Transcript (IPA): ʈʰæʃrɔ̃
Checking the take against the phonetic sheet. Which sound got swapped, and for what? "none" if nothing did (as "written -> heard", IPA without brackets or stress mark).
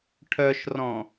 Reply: æ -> œ